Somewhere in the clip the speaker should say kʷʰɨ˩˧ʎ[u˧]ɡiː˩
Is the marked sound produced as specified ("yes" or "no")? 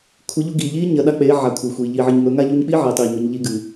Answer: yes